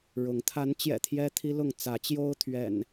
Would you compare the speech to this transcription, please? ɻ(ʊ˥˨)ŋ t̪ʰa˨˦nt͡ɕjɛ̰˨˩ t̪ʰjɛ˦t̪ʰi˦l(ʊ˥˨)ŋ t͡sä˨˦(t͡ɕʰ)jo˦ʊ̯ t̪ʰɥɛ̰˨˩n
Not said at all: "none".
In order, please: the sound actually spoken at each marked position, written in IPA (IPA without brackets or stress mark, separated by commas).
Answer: ʊ˨˦, ʊ˥˨, t͡ɕ